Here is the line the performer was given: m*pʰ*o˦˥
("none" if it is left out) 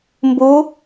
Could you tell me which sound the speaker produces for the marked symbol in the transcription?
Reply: b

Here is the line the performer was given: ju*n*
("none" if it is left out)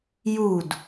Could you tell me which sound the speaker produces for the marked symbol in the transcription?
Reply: d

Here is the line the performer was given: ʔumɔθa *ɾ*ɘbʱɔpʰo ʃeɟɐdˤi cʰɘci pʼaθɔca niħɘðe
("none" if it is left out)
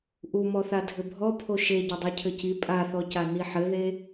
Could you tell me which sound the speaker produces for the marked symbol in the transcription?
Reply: dʱ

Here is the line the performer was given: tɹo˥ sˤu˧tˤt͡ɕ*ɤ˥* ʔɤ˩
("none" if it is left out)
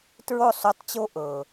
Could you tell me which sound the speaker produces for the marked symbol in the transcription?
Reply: o˥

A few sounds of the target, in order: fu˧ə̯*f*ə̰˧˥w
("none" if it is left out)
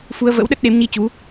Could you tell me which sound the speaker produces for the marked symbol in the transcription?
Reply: v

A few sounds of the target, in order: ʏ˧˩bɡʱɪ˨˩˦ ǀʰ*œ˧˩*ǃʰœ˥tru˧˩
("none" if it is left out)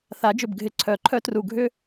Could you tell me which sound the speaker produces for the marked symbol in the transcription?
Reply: œ˨˩˦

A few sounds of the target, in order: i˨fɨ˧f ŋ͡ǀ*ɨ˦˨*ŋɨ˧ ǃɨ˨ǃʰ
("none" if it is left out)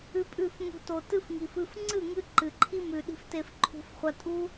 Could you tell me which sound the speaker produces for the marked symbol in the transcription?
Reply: ɨ˦˨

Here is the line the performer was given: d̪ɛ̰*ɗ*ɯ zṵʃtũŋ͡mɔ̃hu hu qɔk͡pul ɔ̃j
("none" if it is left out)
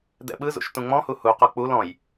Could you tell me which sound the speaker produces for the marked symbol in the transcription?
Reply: ɓ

